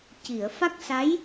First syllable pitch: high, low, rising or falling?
low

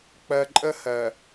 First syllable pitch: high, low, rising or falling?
low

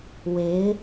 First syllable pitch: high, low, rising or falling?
rising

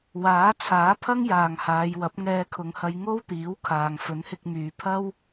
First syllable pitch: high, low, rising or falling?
rising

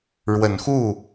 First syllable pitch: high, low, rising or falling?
low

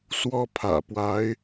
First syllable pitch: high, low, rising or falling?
high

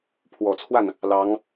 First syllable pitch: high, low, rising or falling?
low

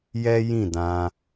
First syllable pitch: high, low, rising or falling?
high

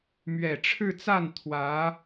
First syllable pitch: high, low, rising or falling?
low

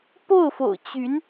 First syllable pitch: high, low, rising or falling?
falling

